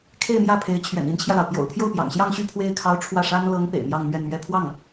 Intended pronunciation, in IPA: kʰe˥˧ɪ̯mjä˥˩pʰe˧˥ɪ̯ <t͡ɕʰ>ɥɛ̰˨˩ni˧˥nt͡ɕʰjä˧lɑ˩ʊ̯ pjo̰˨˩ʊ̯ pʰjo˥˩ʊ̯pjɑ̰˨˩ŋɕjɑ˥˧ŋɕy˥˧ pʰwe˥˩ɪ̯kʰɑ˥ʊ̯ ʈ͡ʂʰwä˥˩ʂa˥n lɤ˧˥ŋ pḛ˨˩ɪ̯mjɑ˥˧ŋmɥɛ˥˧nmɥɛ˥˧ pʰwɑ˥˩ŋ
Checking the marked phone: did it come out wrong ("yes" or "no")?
no